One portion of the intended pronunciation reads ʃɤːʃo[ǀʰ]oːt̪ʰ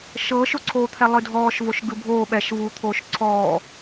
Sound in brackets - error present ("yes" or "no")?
no